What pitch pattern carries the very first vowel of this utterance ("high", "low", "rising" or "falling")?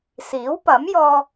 rising